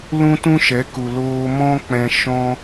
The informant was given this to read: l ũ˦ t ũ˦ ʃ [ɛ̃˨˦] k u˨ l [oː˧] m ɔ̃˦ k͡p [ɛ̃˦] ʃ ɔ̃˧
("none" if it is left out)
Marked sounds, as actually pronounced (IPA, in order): ɛ˨˦, oː˧, ɛ̃˧

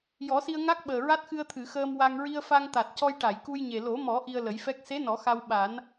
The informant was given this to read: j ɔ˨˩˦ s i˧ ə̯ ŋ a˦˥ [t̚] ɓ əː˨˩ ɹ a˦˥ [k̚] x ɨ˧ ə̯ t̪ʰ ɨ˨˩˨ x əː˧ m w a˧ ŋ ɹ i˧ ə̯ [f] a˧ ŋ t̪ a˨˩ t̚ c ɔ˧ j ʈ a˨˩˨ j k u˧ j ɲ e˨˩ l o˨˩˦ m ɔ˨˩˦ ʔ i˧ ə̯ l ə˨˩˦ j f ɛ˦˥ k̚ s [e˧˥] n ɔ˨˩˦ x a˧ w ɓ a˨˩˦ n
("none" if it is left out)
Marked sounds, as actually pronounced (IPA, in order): k̚, t̚, f, e˧˥

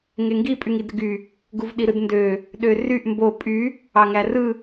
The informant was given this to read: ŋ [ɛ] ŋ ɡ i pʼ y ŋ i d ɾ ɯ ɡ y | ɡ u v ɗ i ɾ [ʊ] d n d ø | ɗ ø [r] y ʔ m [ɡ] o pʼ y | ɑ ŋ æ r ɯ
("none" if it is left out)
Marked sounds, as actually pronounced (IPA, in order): e, ɯ, r, b

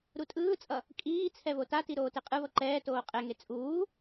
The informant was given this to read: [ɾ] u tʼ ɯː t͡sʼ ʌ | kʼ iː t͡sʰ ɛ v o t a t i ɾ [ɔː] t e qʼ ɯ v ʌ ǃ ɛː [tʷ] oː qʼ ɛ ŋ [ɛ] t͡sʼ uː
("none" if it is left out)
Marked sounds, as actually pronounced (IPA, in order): ɾ, oː, t, e

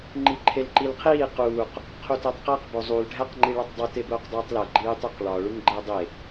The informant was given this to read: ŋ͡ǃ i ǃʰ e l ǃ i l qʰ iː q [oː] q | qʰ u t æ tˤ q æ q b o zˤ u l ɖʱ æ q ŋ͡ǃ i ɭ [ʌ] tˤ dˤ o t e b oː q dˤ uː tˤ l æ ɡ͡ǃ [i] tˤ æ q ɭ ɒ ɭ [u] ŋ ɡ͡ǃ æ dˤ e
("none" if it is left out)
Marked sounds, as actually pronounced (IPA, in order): uː, ɒ, iː, u

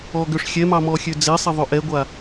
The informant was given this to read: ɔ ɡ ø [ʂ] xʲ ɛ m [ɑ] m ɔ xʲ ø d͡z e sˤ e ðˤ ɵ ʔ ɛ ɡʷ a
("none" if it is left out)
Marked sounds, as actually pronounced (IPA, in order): ʂ, ɑ

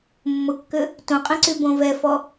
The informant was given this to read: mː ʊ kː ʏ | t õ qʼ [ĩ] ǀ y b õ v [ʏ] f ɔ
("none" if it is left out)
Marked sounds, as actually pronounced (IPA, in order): ĩ, ɛ

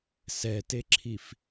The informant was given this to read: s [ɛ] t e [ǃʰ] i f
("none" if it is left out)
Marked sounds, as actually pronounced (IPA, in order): ɛ, ǁʰ

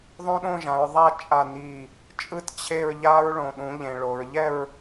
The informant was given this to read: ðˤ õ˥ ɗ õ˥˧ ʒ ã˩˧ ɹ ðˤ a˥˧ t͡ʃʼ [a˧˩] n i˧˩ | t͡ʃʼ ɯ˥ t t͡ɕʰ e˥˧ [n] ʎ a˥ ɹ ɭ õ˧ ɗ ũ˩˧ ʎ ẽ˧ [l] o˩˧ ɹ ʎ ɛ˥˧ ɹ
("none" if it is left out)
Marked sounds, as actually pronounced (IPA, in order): a˧˩, ɹ, ɭ

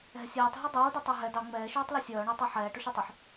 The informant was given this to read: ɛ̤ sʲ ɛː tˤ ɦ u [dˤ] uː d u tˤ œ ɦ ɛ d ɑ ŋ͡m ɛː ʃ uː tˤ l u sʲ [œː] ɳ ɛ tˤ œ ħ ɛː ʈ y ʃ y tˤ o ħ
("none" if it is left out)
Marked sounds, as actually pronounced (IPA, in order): dˤ, œː

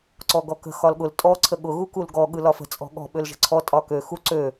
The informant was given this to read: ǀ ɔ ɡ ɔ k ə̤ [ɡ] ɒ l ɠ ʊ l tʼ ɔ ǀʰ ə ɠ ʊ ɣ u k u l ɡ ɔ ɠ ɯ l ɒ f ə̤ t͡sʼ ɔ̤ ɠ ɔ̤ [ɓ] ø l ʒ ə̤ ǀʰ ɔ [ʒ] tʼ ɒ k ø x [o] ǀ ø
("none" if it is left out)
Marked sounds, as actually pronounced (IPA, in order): x, ɓ, none, u

